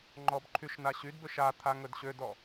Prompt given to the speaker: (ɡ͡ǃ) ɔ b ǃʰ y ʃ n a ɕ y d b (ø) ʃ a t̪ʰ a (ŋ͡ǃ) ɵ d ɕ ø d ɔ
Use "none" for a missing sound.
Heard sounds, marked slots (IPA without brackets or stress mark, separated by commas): ŋ͡ǃ, ø, ŋ